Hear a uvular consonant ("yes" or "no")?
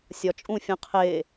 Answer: yes